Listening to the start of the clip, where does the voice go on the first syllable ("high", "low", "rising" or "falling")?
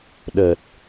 low